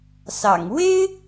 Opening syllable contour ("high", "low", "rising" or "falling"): low